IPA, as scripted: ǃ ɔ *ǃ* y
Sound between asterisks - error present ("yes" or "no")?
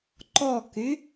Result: yes